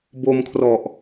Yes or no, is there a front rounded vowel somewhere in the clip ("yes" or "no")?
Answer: no